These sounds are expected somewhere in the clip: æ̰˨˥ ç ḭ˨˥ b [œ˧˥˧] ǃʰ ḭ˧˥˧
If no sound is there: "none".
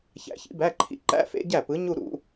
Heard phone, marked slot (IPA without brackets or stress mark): æ˧˥˧